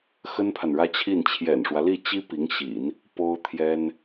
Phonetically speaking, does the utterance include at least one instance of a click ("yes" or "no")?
no